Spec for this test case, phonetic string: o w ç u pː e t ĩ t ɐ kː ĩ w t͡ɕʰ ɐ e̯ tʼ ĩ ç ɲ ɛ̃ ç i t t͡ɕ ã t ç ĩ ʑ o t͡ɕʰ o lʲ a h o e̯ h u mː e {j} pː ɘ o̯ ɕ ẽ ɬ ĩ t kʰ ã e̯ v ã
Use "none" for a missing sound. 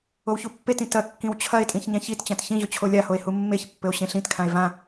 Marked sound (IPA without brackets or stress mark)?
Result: ç